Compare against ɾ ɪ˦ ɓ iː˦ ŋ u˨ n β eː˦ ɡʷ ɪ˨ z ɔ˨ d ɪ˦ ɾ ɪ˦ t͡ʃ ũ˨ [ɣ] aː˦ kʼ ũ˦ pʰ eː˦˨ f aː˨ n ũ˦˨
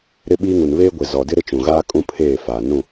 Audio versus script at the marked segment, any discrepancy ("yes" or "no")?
no